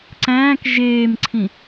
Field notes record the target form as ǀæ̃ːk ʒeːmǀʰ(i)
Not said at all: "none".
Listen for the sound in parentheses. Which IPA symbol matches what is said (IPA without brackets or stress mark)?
ĩ